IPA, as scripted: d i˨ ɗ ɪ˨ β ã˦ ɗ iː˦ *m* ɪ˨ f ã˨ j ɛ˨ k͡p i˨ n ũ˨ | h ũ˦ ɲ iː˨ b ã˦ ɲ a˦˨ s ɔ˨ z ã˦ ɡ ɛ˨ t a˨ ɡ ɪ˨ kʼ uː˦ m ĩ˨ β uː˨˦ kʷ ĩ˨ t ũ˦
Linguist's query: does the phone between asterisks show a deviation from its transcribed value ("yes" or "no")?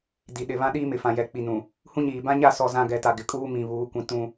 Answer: no